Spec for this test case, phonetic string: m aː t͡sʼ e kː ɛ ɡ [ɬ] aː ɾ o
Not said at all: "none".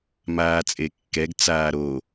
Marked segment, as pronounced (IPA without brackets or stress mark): t͡s